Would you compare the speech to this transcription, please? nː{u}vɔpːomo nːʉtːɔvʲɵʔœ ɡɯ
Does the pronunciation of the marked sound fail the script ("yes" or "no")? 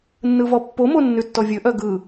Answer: yes